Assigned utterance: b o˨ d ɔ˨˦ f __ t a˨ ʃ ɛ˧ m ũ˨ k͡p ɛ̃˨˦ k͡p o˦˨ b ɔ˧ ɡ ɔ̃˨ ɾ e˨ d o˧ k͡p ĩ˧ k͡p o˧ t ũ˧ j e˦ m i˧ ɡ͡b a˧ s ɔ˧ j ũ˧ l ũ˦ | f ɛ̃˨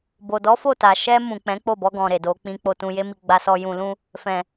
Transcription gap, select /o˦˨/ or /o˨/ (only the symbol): o˦˨